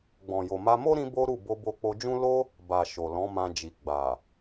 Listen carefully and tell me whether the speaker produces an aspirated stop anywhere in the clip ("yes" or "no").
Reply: no